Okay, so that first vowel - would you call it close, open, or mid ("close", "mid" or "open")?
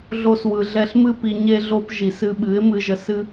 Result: mid